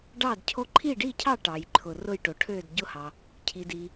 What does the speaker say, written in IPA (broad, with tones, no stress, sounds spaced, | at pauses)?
ɖ ɑ˥˨ d cʰ o˥˨ ǃʰ i˥˨ ɖ i˥˨ cʰ ɑ˥˨ ʈ ɑ˩ j ǃʰ ʊ˩ r ʊ˥˨ j ʈ o˩ ʈʰ ø˥˨ d ɟ ʊ˥˨ h ɑ˩ | cʰ i˩ d i˩